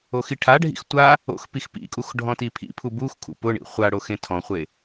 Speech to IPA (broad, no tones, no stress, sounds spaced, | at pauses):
o x i ʈʰ a ɖʱ ḭ x tʷ a | o̰ x p i x p ḭ kʼ u x ɖʱ ɔ̃ t i pʰ ḭ pʰ u b u x kʰ ṵ p ʊ ɳ ḭ χʷ a ɽ o x ẽ tʰ ɔ̃ χʷ e